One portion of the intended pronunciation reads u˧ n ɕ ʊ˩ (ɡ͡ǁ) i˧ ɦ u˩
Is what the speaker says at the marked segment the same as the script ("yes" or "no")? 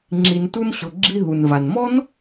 yes